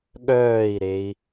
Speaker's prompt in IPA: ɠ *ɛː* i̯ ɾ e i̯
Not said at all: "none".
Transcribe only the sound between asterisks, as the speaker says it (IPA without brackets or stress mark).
œː